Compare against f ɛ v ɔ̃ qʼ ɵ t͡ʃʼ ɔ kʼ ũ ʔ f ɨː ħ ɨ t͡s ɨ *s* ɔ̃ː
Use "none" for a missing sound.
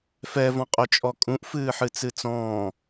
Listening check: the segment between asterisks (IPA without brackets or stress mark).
t͡s